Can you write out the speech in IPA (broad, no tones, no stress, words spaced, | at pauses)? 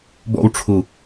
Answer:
bɔ̰wʈ͡ʂʰu